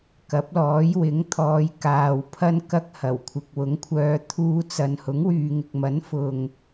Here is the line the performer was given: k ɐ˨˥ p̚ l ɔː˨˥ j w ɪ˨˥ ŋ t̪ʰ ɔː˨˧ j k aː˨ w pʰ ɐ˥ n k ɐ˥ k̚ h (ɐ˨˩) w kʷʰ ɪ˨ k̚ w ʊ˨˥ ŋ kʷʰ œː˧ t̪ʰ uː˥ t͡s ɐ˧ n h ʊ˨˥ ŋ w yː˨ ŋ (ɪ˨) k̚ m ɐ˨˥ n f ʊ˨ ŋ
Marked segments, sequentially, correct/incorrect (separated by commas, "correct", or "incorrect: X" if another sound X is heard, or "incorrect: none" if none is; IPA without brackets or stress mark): correct, correct